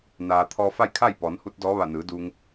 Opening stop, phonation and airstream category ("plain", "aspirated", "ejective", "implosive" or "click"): aspirated